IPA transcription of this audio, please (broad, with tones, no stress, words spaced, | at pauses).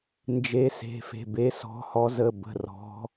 nd͡ʒe˨˦se̤˩˧˩fe̤˩˧˩be˨˦ sɔ̤˨˦hɔ˨˦ zə˩˧˩bə̤˩˧˩rɔ̤˨˦